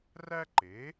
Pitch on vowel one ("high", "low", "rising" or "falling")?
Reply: high